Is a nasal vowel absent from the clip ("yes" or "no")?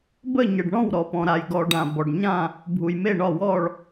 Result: no